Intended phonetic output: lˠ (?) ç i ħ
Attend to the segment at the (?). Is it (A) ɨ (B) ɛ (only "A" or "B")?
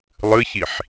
A